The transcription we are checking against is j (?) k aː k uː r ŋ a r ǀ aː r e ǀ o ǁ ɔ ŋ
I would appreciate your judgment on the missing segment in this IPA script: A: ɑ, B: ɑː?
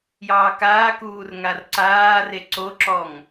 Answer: B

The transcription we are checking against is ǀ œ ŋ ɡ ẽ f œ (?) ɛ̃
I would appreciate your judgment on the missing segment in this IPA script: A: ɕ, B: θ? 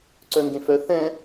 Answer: B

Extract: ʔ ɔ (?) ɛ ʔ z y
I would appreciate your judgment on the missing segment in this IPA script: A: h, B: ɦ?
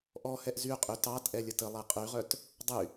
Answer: A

